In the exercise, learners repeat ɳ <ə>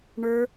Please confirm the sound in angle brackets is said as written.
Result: no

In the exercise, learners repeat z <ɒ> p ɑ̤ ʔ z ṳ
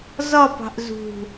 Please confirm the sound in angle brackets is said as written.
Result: yes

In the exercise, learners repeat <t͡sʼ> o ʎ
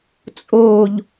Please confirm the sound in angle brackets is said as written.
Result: yes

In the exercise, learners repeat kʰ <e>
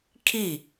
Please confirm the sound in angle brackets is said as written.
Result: no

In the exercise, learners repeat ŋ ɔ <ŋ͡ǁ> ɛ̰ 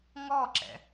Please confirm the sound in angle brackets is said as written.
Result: no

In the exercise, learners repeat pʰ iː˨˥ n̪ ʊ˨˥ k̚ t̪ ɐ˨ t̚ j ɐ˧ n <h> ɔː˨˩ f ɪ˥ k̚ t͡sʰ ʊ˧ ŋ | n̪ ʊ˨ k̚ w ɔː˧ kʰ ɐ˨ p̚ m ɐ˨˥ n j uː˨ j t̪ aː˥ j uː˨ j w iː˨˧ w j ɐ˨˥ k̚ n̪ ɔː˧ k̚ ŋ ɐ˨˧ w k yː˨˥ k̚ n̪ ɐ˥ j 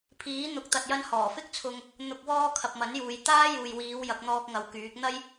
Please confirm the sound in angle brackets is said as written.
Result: yes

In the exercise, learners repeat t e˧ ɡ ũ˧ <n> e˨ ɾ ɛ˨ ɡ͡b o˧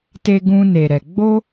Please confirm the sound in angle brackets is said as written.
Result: yes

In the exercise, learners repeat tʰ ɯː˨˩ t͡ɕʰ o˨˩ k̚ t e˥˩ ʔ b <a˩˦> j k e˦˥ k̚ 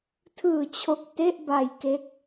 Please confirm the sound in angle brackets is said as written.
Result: no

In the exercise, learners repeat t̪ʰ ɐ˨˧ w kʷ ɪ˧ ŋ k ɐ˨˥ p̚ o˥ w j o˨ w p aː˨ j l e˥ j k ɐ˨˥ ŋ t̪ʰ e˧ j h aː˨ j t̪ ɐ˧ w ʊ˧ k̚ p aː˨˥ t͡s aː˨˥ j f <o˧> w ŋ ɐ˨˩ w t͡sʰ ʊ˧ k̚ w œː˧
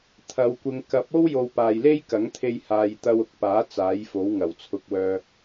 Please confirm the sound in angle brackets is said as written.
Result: no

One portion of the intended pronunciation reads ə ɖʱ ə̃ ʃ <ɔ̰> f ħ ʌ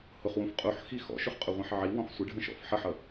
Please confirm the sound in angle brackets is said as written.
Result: yes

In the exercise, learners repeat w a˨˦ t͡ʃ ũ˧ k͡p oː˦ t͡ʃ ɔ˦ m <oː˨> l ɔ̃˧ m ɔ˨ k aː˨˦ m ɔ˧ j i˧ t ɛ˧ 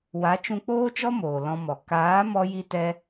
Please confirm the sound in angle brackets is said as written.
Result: yes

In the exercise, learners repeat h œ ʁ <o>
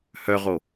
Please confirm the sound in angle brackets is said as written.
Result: yes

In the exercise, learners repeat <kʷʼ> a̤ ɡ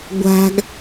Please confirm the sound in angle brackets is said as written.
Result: no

